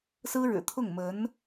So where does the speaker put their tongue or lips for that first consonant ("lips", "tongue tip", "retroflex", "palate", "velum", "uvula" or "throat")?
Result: tongue tip